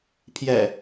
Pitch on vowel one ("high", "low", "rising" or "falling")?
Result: low